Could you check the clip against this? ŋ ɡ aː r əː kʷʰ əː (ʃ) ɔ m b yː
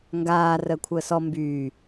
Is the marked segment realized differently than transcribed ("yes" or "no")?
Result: yes